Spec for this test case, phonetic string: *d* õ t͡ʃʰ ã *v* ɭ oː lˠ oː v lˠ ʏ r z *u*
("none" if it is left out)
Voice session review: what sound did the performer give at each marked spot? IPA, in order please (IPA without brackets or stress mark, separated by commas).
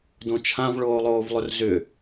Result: d, v, ʏ